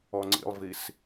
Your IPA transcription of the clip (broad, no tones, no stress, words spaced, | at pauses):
ɔŋ͡ǀḭlˠvis